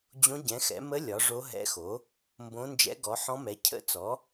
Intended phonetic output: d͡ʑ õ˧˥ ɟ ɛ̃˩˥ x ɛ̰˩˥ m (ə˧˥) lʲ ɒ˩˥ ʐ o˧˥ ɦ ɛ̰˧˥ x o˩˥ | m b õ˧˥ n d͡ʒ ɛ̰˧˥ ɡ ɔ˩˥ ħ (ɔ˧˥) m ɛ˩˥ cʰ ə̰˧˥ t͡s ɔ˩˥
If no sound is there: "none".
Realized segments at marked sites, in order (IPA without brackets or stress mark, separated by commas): ə˧˥, ɔ̃˧˥